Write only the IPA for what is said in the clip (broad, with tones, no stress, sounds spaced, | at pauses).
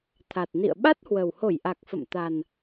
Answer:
t̪ʰ a˨˩ t̚ n ḭ˧˨ ə̯ ɓ a˦˥ t̚ h w ə˨˩ w h o˧˩ j ʔ a˨˩ k̚ f ə̰˧˨ m t̪ a˨˩ n